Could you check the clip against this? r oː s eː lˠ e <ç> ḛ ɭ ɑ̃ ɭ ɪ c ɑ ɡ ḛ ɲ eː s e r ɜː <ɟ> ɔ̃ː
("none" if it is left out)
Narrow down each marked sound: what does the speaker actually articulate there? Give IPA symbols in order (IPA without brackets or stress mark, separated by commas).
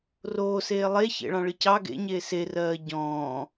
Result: ç, ɟ